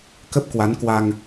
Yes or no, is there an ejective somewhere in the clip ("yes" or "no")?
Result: no